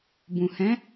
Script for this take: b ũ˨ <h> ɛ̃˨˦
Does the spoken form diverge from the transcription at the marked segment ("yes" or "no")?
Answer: no